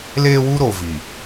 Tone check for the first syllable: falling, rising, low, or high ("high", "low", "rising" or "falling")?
high